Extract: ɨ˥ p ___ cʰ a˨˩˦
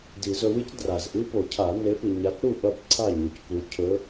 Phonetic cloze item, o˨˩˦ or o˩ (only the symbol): o˨˩˦